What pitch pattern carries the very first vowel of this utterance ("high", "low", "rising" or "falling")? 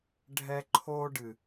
high